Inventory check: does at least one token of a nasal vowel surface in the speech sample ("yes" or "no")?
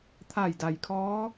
no